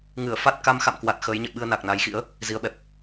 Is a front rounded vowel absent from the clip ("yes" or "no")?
yes